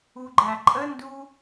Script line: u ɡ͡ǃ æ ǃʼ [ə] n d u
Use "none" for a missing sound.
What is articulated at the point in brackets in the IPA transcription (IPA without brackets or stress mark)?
ə